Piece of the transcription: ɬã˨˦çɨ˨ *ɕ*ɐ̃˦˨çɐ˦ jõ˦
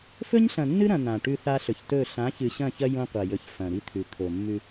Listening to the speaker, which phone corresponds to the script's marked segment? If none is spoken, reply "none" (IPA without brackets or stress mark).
ɕ